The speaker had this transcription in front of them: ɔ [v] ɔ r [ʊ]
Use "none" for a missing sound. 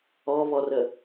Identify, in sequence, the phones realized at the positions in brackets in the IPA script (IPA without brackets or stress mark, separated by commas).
β, ə